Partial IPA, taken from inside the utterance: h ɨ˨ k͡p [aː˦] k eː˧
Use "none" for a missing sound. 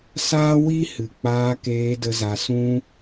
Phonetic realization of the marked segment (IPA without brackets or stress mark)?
aː˧